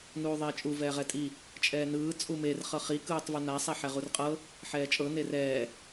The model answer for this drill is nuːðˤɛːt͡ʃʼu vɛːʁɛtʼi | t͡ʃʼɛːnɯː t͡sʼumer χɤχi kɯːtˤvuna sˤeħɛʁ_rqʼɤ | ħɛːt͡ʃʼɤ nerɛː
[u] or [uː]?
u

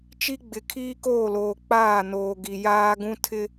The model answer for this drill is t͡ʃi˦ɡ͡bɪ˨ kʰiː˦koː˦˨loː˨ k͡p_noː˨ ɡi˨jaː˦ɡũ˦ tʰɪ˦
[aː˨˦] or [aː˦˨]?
aː˦˨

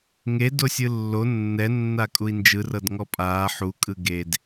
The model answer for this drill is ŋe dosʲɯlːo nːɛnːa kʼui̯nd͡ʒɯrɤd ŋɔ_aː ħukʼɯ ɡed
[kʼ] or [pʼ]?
pʼ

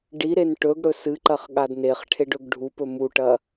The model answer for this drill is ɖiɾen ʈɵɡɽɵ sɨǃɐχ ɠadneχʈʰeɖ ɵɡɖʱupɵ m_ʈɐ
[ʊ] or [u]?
u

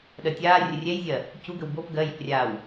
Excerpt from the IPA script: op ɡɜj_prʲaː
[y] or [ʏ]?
ʏ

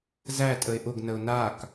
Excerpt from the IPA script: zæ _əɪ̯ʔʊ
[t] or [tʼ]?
tʼ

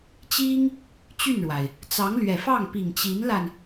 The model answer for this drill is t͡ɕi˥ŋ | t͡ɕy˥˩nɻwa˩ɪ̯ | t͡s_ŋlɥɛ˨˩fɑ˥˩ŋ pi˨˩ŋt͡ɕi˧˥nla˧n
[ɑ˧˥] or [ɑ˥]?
ɑ˧˥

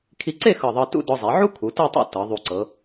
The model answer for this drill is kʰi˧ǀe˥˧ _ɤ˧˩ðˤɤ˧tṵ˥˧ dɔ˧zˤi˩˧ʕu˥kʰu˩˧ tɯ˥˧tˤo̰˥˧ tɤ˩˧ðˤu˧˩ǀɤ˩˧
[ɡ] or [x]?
x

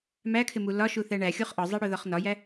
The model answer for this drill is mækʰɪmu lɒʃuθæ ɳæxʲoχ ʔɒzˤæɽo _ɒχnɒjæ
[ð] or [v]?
ð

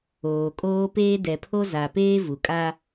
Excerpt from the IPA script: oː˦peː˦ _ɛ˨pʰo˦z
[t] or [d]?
d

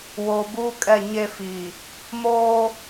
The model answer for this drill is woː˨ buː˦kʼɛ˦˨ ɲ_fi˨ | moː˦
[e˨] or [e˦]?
e˦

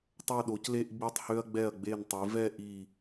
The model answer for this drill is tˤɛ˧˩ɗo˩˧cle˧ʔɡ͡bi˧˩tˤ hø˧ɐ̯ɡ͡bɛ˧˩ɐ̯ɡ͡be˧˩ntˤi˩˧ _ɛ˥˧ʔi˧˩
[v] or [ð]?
v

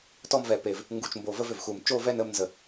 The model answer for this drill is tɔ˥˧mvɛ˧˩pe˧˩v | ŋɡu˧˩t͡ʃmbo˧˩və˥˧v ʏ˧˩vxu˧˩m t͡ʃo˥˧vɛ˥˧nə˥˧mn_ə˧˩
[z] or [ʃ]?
z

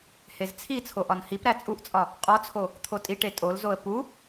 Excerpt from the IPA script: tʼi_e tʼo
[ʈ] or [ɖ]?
ʈ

